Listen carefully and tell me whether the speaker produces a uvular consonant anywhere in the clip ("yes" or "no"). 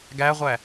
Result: yes